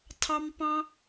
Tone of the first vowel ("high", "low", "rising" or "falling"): high